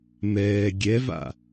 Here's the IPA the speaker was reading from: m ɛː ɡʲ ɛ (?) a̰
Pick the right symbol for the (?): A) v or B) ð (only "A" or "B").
A